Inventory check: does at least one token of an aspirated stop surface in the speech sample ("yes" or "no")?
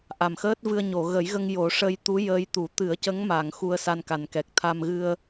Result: yes